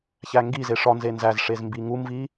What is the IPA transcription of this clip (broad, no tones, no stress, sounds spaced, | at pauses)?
ç æ ŋ ɡ i z e ʂ ɒ n z e n z æ z ʂ e z m b i ŋ u m v i